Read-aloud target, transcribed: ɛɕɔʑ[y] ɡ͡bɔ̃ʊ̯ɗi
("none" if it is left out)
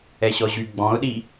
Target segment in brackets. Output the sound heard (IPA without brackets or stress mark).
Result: y